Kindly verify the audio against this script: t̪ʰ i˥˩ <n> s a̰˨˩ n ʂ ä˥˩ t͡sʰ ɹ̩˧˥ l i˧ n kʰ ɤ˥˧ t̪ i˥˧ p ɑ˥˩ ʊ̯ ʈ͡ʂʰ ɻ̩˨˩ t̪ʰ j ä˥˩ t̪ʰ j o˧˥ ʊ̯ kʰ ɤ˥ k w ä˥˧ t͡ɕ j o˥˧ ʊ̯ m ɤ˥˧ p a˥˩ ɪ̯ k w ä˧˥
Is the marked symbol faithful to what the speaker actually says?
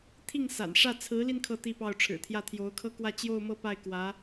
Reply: no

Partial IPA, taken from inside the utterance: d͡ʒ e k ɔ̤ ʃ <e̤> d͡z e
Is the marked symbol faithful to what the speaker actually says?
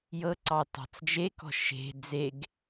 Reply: yes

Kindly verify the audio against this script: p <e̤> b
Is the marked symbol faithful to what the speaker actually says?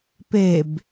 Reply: no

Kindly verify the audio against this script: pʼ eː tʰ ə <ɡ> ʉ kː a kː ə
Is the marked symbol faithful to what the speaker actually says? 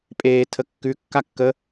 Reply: no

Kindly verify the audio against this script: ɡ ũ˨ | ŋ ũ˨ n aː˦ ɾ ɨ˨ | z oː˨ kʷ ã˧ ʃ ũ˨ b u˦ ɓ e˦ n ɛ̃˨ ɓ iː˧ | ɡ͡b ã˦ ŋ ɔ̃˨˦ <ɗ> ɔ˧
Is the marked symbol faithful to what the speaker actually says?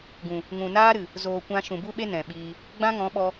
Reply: no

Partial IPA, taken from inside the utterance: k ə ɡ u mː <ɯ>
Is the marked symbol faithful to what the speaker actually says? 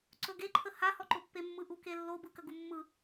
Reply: yes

